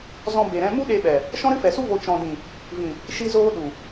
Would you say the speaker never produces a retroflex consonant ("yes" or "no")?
yes